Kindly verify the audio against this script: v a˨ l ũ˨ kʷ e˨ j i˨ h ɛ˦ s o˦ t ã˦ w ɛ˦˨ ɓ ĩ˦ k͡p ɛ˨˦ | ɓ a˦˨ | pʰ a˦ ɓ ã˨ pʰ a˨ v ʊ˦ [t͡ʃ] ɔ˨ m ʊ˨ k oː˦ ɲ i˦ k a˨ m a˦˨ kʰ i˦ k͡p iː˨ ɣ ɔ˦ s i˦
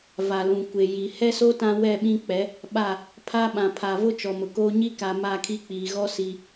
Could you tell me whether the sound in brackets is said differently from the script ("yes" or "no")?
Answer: no